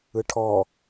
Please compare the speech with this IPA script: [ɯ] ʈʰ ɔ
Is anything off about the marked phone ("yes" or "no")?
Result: no